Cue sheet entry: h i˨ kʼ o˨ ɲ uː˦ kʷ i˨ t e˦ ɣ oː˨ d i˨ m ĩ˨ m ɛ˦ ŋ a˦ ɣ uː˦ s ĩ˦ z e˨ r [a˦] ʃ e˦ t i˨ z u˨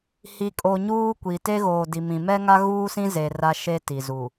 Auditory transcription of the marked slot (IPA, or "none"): a˦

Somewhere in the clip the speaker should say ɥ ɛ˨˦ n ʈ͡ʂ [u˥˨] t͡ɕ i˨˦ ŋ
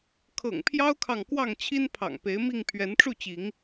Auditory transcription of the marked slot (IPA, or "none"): u˥˨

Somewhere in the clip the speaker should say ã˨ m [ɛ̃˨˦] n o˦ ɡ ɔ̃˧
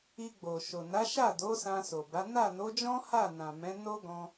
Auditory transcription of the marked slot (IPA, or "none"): ɛ̃˨˦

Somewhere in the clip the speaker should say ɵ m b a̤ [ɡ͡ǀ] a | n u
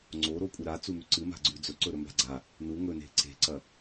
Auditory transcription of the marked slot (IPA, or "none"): ɡ͡ǀ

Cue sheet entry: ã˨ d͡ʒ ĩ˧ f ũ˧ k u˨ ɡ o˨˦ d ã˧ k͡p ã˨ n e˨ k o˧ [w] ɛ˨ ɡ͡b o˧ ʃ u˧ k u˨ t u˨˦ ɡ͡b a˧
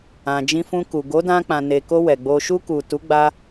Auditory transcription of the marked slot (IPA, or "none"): w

